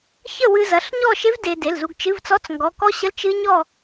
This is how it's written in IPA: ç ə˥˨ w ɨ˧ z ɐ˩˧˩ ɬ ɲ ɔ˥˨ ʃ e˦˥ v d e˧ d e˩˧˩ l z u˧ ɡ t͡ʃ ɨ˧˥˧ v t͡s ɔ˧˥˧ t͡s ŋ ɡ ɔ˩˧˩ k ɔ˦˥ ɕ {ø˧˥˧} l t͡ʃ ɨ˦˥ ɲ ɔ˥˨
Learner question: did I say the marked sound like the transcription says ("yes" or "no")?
no